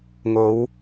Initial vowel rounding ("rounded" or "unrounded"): rounded